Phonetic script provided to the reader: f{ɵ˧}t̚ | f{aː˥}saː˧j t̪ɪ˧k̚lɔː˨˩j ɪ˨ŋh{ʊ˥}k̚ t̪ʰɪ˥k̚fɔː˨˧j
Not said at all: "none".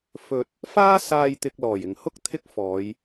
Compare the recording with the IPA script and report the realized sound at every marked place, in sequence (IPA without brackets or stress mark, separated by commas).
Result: ɵ˧, aː˥, ʊ˥